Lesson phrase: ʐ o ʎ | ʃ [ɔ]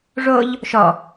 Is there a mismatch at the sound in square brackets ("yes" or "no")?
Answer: no